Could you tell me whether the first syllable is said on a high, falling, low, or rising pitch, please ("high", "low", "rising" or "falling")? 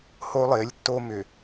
high